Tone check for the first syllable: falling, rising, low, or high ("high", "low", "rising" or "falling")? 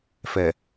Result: low